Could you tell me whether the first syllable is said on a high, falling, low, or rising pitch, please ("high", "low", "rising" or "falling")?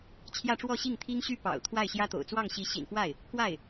falling